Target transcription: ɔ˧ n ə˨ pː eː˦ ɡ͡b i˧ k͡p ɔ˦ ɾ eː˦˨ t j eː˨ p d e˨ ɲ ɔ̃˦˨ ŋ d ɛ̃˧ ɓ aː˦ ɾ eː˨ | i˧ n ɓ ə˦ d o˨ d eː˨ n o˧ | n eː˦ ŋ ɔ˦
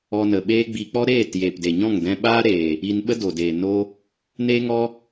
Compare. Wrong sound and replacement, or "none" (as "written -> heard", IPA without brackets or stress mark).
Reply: pː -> ɓ